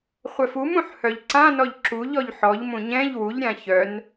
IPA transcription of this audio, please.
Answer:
χʷ ɛ f u m ũ ħ h œ ʎ ǀ ã n ɔ ʎ ǁ u ʎ ɔ ʎ ħ ɔ ʎ m ũ ɲ ɛ̃ ʎ w u ʎ ɾʲ ã ç œ n

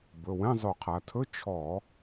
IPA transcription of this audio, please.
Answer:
b ɵ˩˧˩ w ɛ̃˧˥˧ zˤ ɵ˧˩˧ qʰ a˩˧ tʰ ɵ˧˥˧ t͡ʃʰ ɔ˧˩˧

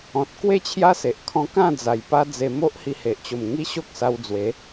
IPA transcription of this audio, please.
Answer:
ɔ̃˨ t̚ k w e˥˧ t͡ɕʰ j a˦ s e˨ ʔ kʰ ɔ̃˧ k ã˥˧ d͡z a˨˩ j p a˦ d͡z e˧ m o˦ ʔ h i˧ h e˨ ʔ t͡ɕ o˨˩ m ŋ i˦ ɕ o˦ k̚ s a˧ w d͡z w e˨˦

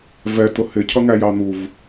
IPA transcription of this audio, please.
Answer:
v ɛ t ʊ h ɪ cʰ ʌ ŋ æ j ɑ n̪ u v

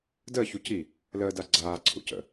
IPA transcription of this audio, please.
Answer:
d əː ç u c i | l əː d a ɡ͡ǀ aː ǀʰ ṵ c ə̰

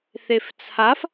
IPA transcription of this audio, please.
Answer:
θ e f t͡sʰ a f

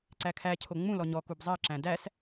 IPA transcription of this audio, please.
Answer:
ǀ æ kʰ æ cʰ o ŋ͡m ũ l ɔ ɲ ɔ k u b zˤ ɜ ǁ æ̃ d æ s

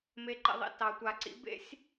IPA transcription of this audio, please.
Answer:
m e˨ ǃ ḛ˨ ðˤ ḭ˨ t ɑ˨ tʷ a˨ ǀ ḭ˦ b ḛ˦ sʲ

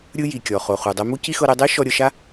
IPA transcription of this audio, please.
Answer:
ɾʲ ɯ˧ j i˩ kʲ ɔ˩ χ o˩ χ u˩ dˤ ɛ˧ m u˥ c i˥ x ɤ˧ ɾ e˧ dˤ e˥ ʃ ɔ˧ ɾʲ ɤ˧ ʃ a˥

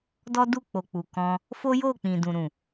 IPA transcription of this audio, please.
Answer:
d ɔ˦ d u˦˨ k͡p o˨ k͡p u˨ k ɔ̃˧ | f o˦ j o˦˨ k͡p ĩ˨ d ũ˨ ɾ ũ˨

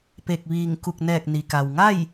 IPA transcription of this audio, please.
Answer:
p e˧˩ k̚ ʋ iː˧˩ ŋ k u˧˩ k̚ n ɛː˧˩ k̚ n i˩ k a˩ w ŋ a˥˨ j

